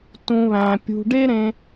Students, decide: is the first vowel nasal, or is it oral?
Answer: nasal